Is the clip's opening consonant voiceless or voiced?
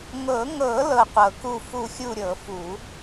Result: voiced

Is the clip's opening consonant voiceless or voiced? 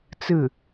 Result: voiceless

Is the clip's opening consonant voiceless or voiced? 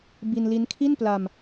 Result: voiced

